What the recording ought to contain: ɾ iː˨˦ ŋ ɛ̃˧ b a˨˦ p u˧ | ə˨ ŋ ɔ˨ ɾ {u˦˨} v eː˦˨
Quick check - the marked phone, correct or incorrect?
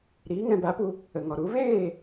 incorrect: u˨˦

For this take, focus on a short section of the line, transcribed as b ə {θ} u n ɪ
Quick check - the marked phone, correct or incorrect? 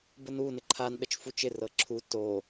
incorrect: n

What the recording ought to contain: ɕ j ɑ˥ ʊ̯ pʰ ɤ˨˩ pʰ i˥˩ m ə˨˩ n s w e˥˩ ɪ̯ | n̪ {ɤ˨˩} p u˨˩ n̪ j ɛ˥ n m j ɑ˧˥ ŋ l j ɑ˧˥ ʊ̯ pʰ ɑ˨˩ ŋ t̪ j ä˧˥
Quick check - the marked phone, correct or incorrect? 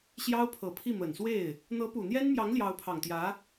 incorrect: ɤ˧˥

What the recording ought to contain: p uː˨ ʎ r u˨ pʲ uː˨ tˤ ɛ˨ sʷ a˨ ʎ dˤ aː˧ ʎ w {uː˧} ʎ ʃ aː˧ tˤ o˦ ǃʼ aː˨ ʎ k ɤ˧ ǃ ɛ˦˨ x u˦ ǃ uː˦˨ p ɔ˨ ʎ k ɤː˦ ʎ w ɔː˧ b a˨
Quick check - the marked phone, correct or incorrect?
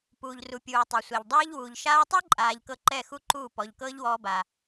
incorrect: uː˨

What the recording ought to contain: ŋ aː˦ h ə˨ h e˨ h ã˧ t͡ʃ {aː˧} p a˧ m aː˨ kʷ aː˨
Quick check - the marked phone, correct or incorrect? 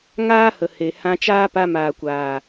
incorrect: aː˦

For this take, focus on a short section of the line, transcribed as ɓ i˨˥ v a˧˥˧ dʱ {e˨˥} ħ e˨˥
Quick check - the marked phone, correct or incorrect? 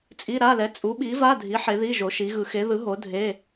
incorrect: i˨˥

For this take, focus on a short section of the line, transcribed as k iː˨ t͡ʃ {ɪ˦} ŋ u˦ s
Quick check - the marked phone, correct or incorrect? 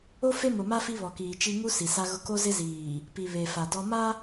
incorrect: i˦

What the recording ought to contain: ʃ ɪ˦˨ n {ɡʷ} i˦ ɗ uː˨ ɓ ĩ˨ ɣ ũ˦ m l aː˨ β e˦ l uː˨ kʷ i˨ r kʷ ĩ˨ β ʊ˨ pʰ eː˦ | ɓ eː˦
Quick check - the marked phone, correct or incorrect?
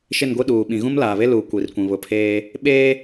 correct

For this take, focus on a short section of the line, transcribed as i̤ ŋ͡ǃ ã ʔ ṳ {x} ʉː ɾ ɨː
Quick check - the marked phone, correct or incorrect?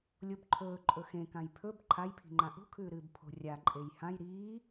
incorrect: kʰ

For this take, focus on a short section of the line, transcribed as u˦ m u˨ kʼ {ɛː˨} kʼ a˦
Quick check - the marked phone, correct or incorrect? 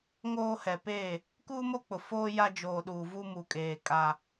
incorrect: eː˨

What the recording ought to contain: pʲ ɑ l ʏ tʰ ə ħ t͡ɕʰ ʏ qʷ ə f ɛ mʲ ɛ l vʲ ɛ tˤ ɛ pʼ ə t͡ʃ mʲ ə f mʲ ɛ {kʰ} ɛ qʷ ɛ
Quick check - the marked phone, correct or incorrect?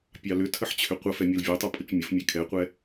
correct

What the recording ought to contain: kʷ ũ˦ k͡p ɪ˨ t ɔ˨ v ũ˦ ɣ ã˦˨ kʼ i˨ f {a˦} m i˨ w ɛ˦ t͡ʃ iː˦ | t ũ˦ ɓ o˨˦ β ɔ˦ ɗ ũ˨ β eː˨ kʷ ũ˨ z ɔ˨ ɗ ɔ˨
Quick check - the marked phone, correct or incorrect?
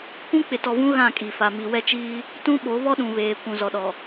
incorrect: a˨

